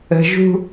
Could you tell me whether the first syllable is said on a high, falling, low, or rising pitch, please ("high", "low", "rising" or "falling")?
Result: low